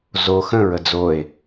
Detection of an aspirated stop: absent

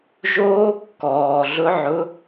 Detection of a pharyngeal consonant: present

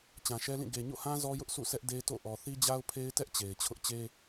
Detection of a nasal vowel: present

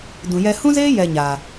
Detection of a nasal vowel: present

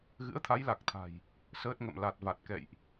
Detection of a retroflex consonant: absent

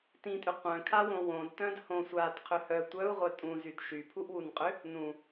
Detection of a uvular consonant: present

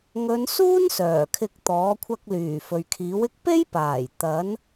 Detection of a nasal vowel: absent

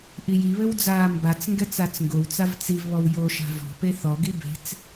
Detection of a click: absent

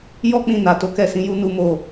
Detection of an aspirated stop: absent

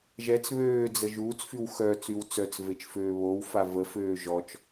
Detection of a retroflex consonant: absent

